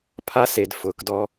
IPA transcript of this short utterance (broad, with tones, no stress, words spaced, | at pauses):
pʰa˦se˨d fʊː˨kdɔ˦